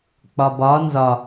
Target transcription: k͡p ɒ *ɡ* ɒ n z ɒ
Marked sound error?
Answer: yes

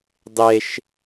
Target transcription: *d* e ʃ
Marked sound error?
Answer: yes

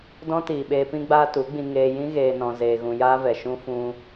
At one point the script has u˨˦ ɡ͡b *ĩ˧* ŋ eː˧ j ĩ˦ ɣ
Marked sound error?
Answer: no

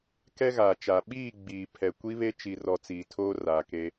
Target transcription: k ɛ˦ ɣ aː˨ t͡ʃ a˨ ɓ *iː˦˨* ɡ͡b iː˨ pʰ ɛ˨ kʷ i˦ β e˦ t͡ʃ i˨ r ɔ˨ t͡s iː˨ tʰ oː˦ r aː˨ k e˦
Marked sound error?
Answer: no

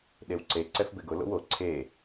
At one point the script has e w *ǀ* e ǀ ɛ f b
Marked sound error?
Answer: no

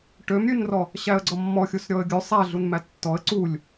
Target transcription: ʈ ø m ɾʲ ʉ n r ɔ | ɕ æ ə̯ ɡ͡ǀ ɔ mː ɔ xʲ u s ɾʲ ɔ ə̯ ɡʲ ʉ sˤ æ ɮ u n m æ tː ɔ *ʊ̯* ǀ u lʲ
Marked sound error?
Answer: yes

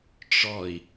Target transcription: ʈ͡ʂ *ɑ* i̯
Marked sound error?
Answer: yes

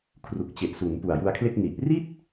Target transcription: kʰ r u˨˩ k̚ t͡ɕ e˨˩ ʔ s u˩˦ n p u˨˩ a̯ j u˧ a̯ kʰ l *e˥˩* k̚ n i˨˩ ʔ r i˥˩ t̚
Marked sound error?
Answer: no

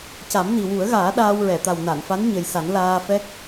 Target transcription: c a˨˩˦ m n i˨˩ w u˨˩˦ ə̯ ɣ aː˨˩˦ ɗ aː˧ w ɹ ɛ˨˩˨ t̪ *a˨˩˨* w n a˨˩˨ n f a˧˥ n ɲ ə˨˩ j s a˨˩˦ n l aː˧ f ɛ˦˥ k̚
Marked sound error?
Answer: yes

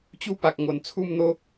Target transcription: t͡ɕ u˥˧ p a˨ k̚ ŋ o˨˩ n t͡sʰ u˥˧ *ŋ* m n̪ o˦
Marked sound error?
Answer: yes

